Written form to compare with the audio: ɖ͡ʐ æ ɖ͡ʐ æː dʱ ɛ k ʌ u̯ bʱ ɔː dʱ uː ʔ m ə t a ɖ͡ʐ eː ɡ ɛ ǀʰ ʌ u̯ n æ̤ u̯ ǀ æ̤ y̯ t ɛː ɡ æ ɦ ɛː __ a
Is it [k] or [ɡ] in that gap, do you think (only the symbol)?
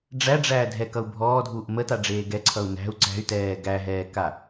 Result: k